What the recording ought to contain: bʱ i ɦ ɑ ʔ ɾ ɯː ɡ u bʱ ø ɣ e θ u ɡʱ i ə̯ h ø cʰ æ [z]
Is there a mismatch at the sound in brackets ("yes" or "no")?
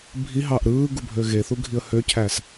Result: yes